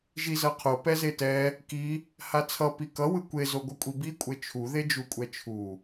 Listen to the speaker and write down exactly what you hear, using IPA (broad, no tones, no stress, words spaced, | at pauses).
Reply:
ʒizʌqʰo pɛzetɛ | ki | hat͡sʰʌ pikʌ wɯkʷe zoɡʷɯkʷʼibi kʷʼet͡ʃʰu ðed͡ʒukʷʼɛt͡ʃʰu